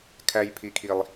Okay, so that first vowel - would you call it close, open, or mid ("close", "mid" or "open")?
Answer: open